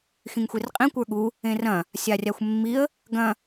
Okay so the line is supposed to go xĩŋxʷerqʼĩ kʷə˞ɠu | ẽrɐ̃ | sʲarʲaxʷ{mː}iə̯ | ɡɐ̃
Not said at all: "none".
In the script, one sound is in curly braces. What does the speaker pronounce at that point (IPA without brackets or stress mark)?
mː